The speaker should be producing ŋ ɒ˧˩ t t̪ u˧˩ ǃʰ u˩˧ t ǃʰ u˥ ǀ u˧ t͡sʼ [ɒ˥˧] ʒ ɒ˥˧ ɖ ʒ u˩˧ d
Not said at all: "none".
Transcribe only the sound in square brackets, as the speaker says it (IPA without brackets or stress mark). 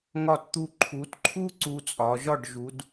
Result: ɒ˩˧